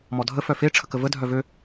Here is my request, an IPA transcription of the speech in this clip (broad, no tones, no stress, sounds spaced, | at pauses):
m ɔ dʱ ə f œ f e ʈ͡ʂʰ ə k ə v ə dʱ œ v ø